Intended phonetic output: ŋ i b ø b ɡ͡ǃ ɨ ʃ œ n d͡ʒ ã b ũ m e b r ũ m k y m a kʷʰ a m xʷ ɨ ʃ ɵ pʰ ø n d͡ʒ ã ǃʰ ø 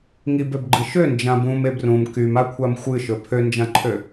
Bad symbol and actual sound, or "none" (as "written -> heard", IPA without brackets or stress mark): œ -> ø